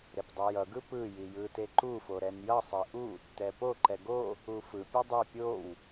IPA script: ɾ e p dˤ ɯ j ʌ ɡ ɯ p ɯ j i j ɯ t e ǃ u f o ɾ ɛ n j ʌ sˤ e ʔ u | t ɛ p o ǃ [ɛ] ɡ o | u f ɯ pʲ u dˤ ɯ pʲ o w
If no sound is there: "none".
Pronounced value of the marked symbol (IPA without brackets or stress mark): ɛ